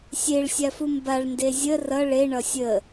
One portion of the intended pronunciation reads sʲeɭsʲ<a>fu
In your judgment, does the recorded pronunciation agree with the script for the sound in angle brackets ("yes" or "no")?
yes